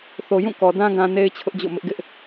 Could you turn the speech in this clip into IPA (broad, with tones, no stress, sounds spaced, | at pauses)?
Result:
θ o˨ j ũ˦˨ k ɔ˨ d ã˦ ɡ ã˦ n e˦ ɪ̯ t͡ɕʰ ʊ˦ ʔ d͡ʑ o̰˦˨ m ɪ˦ ʔ ɡ ɪ˦ ʔ